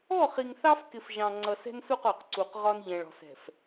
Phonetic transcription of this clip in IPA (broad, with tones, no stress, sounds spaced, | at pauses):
ɔ˦˨ χ i˨ ŋ θ ɑ˦ f k ɪ˨ f ʒ ɑ̃˨ ŋ͡ǀ ʌ˨ s ɛ̤˦ n s u˦˨ q ɔ˨ q ǀ u˨ q ʁ ɒ˦ n ʎ ɛ̃˨ ɭ ɔ̤˨ s ɛ̤˨ f